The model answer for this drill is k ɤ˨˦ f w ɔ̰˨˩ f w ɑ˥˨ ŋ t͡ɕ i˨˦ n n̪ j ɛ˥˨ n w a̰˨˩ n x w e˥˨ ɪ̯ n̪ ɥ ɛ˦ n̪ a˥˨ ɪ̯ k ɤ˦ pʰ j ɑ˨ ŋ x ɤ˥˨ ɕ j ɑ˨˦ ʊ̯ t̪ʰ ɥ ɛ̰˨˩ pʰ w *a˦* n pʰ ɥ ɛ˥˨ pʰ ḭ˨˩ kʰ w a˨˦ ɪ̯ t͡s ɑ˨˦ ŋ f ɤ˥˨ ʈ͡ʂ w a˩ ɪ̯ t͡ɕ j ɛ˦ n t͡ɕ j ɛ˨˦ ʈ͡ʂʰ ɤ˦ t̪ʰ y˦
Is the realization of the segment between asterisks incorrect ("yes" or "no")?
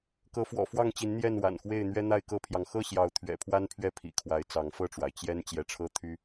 no